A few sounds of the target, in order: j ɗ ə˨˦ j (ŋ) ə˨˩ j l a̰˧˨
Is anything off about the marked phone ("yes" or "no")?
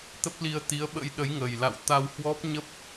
no